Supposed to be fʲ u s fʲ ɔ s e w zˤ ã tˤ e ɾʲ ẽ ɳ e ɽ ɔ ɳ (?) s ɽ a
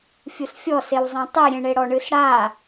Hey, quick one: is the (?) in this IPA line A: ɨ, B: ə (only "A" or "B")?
A